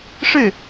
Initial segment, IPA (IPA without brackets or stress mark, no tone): ʂ